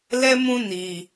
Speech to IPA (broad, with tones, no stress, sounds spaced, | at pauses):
l ɛ˦ m ũ˦ n i˧